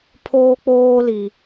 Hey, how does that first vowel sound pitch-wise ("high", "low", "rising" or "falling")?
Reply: high